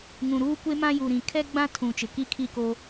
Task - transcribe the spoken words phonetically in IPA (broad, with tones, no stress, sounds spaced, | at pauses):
ŋ ũ˨ ɾ uː˦ kʷ e˦ m ã˦ j u˨ ɾ ĩ˨ kʰ ɛ˦ ɡ͡b ã˦ tʰ ũ˨ t͡ʃ ɪ˨ k i˦ kʰ i˦˨ k o˦